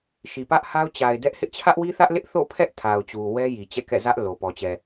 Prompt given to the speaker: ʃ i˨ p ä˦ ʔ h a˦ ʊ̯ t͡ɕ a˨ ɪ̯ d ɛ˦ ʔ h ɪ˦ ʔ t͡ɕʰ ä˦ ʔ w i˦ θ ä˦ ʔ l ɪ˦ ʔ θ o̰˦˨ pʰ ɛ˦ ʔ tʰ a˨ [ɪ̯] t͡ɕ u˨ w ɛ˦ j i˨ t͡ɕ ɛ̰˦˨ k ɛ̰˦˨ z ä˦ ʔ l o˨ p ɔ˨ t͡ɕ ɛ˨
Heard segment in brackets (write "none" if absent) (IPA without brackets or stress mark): ʊ̯